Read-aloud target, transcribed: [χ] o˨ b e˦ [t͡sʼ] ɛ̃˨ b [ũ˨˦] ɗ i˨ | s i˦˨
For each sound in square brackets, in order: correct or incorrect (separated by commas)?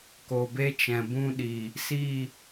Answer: incorrect, incorrect, incorrect